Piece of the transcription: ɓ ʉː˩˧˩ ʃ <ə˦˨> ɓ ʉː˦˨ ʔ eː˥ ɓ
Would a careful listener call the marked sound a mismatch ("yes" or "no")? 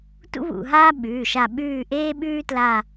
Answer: yes